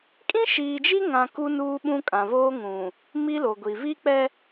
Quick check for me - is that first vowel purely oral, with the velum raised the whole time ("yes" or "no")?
no